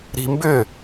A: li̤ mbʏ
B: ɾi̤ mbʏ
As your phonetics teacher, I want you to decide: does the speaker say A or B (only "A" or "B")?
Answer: B